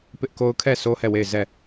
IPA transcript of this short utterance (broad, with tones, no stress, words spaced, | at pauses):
pɪ˦ʔko˦ʊ̯ kʰɛ˦˨ so˦hɛ˦˨ we˦˨ɪ̯ zɛ˦˨